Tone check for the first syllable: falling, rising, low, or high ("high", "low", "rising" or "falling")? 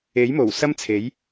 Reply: rising